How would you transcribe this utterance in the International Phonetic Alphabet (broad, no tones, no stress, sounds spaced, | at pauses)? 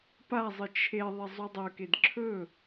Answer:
p a zˤ ɨ t͡ʃʰ e ðˤ e zˤ u dˤ ɵ k e d ǁʰ ɵ